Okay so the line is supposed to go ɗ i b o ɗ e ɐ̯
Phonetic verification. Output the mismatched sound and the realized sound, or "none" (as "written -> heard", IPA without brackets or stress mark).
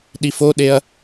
b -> f